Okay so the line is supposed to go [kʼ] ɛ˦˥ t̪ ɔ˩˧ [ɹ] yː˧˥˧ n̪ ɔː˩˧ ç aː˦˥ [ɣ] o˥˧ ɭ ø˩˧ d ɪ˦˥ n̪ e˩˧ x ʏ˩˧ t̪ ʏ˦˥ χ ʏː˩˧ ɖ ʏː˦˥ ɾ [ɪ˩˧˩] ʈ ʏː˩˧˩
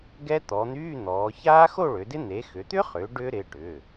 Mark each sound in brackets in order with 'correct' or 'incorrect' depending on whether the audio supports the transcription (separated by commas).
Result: incorrect, incorrect, incorrect, correct